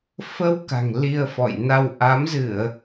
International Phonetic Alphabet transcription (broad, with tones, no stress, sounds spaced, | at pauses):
f ə˧ w k a̤˨˩ ŋ l i˧ ə̯ f ɔ̰˧˨ j n a˧ w ʔ a˨˦ m z ɨ˧˩˨ ə̯